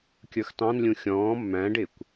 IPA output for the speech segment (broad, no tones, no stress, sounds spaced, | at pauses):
kʲ ə˞ x t ɑ̃ n lʲ ũ xʲ ɔ̃ː mː æ̃ ɖ ɪː kʷ